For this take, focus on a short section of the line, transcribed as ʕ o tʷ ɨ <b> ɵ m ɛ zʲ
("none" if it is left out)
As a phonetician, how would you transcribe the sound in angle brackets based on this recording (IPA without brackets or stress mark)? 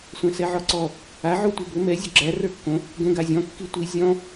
b